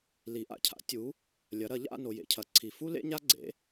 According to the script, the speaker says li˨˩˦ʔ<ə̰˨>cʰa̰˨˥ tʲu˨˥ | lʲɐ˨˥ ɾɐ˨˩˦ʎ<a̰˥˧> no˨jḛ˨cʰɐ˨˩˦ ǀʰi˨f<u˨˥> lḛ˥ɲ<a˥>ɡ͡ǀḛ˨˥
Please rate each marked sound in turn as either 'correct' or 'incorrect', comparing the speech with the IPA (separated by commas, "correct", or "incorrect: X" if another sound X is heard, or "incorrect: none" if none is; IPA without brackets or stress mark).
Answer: incorrect: a̰˨, correct, incorrect: u˥, correct